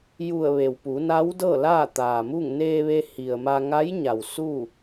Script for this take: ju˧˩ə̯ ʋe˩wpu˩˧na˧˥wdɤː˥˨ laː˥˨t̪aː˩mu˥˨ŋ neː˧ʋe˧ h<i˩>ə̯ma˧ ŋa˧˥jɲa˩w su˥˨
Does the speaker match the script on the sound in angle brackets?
yes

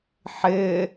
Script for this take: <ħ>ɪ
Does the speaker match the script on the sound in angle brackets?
yes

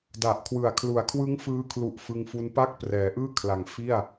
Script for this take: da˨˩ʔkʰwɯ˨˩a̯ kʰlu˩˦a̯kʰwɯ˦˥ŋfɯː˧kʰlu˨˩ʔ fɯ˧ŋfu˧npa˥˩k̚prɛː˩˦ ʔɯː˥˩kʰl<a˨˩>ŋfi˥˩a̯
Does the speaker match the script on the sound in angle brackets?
yes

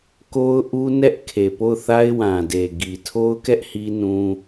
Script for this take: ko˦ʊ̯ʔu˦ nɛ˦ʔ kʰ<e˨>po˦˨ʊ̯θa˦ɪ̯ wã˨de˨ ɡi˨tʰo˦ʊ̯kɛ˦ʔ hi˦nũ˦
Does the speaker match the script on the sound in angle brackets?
yes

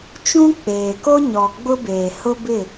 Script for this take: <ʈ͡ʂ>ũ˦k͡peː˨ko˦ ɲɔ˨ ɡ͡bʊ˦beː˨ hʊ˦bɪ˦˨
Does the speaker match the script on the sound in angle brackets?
no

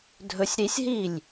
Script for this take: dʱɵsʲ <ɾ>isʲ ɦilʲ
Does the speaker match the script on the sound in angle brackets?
yes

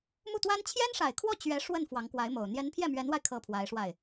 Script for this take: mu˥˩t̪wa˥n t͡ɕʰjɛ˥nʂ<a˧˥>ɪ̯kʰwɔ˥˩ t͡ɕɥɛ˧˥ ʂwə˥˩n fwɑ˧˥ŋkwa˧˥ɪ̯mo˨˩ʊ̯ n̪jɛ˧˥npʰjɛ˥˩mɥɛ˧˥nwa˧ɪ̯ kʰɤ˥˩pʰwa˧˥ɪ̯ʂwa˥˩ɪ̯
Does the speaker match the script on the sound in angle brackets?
no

